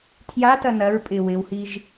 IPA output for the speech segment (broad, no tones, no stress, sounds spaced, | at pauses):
tʰ j a t ɐ n ɐ ɹ pʼ ɪ w ɪ w h i ʒ